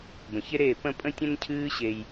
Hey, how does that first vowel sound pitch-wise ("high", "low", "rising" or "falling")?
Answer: low